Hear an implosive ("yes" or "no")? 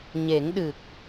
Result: yes